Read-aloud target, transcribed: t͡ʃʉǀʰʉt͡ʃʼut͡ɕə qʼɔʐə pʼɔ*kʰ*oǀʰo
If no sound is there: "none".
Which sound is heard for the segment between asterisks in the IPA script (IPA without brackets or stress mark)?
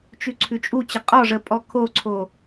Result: kʰ